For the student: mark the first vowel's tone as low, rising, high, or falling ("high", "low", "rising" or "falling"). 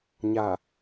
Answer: low